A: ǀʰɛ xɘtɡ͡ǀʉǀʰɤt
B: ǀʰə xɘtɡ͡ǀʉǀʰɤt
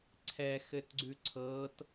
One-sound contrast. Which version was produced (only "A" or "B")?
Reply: A